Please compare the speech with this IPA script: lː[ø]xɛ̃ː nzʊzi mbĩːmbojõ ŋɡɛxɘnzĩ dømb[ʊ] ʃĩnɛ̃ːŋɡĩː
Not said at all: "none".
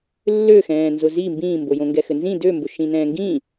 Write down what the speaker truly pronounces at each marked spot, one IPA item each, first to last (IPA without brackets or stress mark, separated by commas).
ø, ʊ